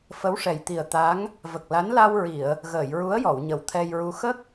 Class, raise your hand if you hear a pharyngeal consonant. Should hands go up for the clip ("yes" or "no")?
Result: no